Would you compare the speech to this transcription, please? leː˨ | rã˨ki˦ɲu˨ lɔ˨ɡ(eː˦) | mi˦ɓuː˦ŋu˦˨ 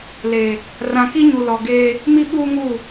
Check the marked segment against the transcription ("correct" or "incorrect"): correct